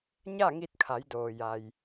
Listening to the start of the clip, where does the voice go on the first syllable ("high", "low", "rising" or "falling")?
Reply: falling